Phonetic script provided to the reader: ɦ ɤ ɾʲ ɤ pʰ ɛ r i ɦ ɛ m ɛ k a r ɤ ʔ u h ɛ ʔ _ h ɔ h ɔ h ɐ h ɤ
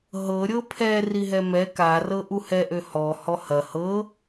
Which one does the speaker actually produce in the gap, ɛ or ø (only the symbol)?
ø